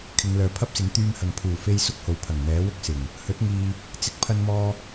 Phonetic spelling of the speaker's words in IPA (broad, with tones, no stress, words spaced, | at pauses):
kʰɪ˨˧ŋlœː˨pʰɐ˥p̚sɪ˨˥ŋ t̪yː˧mhɐ˨ŋ pʰuː˨˩fe˧j sʊ˥k̚ho˨wpʰɐ˨˩ŋ n̪ɛː˨˥wʊ˥k̚sɪ˨˩ŋ | hɵ˨˥t̚ŋiː˨ | t͡sɪ˧k̚pʰɐ˧nmɔː˧